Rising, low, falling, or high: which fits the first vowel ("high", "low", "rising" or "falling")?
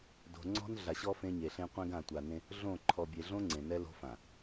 low